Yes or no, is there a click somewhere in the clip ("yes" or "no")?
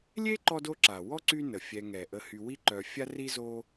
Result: yes